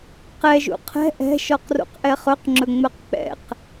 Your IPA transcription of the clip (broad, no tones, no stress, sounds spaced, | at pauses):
q ɛ ʒ ṵ qʰ ɛ̤ ʔ ɛ̤ ʃ ɔ q r ṵ q ʔ ɛ χ ɵ q ŋ͡ǁ ɵ ŋ͡m ɛ q k͡p ɛ̰ q